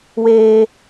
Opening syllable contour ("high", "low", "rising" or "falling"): high